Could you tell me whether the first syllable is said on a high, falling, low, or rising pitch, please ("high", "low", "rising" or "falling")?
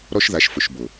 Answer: high